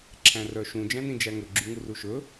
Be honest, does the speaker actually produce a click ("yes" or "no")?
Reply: yes